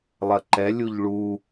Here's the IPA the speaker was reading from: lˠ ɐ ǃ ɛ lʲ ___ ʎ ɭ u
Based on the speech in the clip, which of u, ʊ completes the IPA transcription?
u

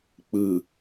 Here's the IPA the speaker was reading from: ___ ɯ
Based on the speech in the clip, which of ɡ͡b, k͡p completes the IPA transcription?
k͡p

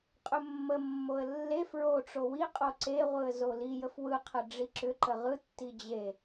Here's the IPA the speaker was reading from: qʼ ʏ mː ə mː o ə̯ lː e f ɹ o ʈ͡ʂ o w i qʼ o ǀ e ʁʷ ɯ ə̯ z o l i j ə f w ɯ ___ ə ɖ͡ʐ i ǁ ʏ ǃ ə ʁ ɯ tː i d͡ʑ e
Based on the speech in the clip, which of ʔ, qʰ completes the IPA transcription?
qʰ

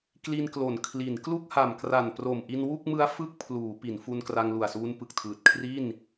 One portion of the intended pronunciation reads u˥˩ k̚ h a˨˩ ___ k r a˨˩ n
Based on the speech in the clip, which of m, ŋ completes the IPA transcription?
m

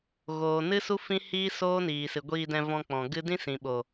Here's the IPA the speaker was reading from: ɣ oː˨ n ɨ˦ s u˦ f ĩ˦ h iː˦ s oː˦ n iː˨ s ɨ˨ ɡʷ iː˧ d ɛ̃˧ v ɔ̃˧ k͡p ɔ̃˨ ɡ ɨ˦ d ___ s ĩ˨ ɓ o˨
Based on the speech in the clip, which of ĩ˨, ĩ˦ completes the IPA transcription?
ĩ˦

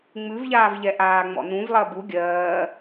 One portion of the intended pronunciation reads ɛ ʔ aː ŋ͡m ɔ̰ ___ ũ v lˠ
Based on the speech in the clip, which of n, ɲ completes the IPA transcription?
n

